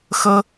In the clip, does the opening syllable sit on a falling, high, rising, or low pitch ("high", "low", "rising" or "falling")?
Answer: high